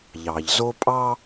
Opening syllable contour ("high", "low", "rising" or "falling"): low